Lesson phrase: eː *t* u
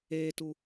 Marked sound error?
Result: no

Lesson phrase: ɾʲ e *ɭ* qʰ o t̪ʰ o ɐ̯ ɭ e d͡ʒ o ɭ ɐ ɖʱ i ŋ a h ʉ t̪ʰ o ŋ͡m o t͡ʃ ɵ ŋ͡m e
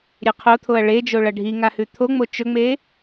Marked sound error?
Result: yes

